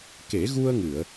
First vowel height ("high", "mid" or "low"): mid